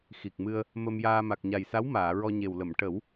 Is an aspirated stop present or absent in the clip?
absent